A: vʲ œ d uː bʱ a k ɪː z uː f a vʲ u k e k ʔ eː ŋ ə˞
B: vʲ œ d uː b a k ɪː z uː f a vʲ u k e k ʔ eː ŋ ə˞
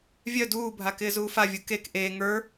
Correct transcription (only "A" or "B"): A